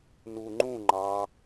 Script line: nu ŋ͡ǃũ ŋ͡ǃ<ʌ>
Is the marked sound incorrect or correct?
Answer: incorrect